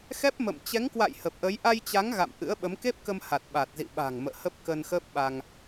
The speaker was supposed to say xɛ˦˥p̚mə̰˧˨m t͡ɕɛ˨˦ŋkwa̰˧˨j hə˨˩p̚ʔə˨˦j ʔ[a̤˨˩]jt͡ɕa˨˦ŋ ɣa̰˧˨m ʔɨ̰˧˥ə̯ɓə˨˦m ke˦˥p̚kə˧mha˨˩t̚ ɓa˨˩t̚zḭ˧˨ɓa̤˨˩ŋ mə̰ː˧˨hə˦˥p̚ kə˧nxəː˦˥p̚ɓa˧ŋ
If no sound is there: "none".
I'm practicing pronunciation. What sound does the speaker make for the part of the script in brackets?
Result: a˧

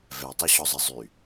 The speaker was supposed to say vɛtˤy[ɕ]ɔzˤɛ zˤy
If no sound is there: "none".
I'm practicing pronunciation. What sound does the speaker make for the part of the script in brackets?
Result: ɕ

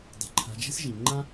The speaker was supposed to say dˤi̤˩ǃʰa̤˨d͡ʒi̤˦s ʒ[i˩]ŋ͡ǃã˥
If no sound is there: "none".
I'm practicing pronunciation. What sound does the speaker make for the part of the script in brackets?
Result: i˩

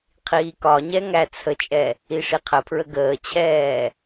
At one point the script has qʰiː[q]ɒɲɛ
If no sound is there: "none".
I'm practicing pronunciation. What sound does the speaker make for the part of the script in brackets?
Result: k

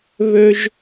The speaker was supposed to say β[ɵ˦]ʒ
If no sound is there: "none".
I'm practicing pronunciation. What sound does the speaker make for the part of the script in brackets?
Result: ɵ˦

